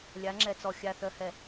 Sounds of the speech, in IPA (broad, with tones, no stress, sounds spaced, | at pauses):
lʲ a˨˦ ŋ͡ǁ ɛ˨ t͡s ɔ˨ xʲ a˨ θ œ˨ h ɛ˨